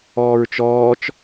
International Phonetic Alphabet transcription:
ɔː ɹ t͡ʃ ɔː t͡ʃ

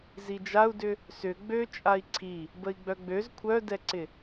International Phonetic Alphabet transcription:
z i d͡ʒ a u̯ d ʏ | s ʏ ɡ͡b ø t͡ʃʼ a i̯ ǀʰ i | b ə i̯ ɡ͡b œ ɡ͡b ø z kʷʰ œ d ɛ ǀ ɪ

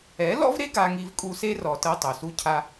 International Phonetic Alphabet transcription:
ɛ˨˦ l ɔ̰˦ v ɾ e˦ ɡ a˧ ŋ i˧ v kʼ u˧ s e˦ r ɔ˨ t ɤ˧ tˤ o˨ s u˦ cʰ a˦

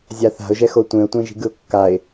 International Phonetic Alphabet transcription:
zʲ a θ a̤ ʊ̯ ʒ ɛ x o tʷ ẽ ʊ̯ tʷ ẽ ʒ i̤ ɡ ɯ ʊ̯ kː a ɪ̯

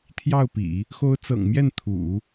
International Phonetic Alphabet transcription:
t̪ʰ j ɑ˥˩ ʊ̯ p ḭ˨˩˦ | x o˧˥ ʊ̯ t͡s ɤ̰˨˩ ŋ m j ɛ˥˩ n t̪ʰ ṵ˨˩˦

